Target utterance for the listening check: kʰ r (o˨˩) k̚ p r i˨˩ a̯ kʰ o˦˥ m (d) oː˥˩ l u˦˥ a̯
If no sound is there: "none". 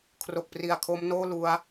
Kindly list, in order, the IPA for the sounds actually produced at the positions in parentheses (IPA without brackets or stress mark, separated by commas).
o˨˩, n